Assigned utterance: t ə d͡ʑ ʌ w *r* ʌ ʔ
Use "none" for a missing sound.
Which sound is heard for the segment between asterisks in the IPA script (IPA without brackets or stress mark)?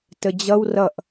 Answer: r